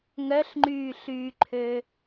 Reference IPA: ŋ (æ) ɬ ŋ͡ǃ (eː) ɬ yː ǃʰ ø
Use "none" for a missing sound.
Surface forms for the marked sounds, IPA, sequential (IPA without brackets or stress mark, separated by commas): œ, yː